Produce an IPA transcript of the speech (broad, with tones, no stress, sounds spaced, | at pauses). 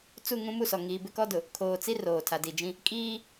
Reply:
t͡s u˦˨ ŋ ũ˦ m u˦˨ s ɔ˨ ŋ iː˨ b ɪ˦ k ɔ˦ d ʊ˨ | kʰ oː˨ t͡s i˦ r oː˨ tʰ a˨ d i˨ d͡ʒ ĩ˦ | kʼ iː˦